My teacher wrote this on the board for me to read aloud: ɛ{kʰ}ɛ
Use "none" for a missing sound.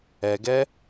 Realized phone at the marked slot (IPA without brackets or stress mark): ɡ